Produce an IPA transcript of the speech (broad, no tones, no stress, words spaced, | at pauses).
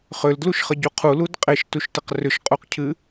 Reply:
χʏldluʃχəɟu qʰulud qʼeʃtuʃtəq rʏʃqʼuqcʰɨ